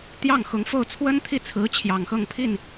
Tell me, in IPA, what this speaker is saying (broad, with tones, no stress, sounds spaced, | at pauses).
t̪ j ɑ˥˩ ŋ x ʊ˧˥ ŋ f o˥˩ ʊ̯ t͡sʰ w ə˥ n t̪ʰ i˥˩ t͡sʰ ɹ̩˧˥ t͡ɕʰ j ɑ˨˩ ŋ x ɤ˥˧ ŋ pʰ i˥˩ n